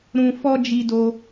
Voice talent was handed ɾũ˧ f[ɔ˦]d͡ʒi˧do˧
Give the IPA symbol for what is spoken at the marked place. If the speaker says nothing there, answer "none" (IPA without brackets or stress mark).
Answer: ɔ˦